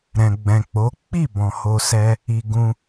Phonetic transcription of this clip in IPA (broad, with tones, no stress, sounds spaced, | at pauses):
ɾ ɛ̃˨ ɡ͡b ɛ̃˨ k͡p o˨˦ k͡p i˦˨ b ɔ̃˨ h o˧ s ɛ˦ | i˧ ɡ ũ˧